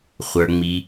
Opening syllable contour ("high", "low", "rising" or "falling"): low